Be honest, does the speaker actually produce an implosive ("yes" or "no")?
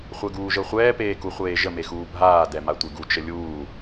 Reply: no